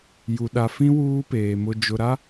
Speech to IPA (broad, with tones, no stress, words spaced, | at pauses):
ju˨ɗa˨fĩ˦ wuː˦peː˨ mʊ˨d͡ʒʊ˨ɾa˦